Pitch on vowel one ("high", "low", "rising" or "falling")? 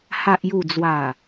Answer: low